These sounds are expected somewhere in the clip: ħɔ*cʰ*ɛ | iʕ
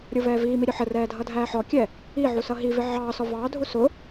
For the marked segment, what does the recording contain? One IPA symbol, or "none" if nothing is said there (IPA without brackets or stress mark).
kʲ